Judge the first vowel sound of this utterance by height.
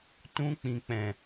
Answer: high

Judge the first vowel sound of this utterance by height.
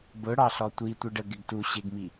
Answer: high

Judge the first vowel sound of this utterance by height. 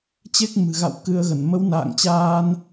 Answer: mid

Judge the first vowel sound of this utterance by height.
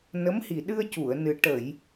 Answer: mid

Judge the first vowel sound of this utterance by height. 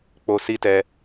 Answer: mid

